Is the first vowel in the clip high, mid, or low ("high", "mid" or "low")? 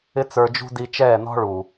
high